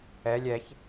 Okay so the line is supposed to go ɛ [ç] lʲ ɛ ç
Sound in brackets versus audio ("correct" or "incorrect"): incorrect